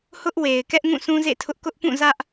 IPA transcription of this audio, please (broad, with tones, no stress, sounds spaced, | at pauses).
h ʊ˦ ʔ w e˨ ɪ̯ k ɛ˦ ʔ ŋ ũ˦˨ sʰ ũ˦ z ḛ˦˨ tʰ ʊ˦ ʔ k ʊ˦ ʔ p ũ˦˨ z ä˦ ʔ